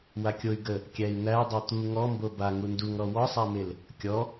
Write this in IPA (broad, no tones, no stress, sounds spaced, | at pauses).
w a kʲ o y̯ ɡ ə | kʲ æ i̯ n̪ æ dˤ o t̪ u ŋ ɔ m b o b a ŋ u n d u ŋ ɾ ɔ w ɔ sˤ æ m e l | kʲ ɔ